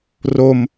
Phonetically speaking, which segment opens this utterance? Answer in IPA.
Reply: r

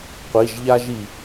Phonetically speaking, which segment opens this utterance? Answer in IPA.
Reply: qʷ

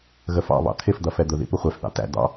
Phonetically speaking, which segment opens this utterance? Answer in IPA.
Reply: ɣ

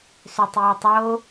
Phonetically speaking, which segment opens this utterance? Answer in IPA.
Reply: s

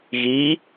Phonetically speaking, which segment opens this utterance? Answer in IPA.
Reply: ɣ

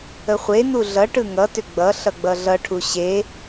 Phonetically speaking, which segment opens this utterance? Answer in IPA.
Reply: ə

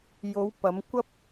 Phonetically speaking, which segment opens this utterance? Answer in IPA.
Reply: j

